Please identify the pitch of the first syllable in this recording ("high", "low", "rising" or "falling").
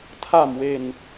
low